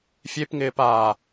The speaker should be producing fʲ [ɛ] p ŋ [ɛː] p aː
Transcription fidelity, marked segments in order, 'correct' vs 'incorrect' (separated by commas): incorrect, incorrect